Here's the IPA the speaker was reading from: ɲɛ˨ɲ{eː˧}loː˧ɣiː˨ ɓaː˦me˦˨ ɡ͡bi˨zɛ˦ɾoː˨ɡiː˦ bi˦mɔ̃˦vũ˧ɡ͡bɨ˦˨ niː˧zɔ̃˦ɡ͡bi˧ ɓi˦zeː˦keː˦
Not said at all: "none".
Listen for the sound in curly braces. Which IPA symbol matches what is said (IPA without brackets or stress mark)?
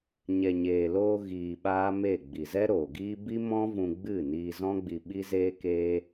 eː˨